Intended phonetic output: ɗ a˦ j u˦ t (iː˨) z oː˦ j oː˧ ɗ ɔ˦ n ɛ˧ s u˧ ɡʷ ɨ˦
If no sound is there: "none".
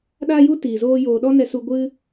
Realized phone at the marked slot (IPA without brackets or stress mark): iː˨